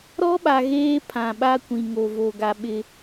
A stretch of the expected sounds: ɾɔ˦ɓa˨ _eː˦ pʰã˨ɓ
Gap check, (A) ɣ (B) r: A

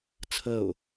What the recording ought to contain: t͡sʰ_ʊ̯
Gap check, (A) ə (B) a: A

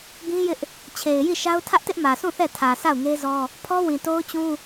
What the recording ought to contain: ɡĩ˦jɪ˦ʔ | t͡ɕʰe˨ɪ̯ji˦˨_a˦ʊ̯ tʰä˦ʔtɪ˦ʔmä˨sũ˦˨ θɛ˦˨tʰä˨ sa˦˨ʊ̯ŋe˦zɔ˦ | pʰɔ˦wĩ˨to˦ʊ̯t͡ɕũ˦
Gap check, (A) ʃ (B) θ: A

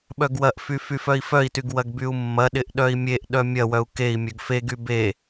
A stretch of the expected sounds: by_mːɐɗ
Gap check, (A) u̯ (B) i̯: A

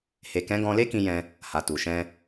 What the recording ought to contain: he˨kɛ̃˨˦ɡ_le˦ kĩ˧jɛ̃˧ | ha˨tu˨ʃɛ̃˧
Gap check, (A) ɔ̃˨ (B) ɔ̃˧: B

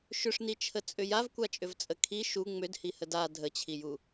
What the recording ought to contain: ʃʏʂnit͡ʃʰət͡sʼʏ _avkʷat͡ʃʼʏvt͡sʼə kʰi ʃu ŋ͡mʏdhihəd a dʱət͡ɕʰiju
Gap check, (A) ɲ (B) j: B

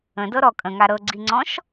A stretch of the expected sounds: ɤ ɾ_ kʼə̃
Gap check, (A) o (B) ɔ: B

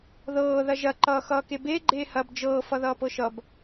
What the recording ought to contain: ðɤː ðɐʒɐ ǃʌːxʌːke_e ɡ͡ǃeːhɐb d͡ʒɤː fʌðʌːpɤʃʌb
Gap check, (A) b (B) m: A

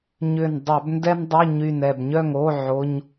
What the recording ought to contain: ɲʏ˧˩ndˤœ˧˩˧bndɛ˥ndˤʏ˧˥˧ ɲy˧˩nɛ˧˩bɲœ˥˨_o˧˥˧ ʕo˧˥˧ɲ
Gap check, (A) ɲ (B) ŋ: B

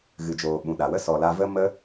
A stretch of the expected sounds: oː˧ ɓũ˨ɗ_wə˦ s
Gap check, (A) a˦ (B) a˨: B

